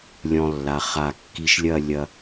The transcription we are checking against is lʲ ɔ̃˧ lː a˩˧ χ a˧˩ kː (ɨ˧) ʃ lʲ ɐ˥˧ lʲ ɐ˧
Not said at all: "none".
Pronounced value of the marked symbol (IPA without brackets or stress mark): i˧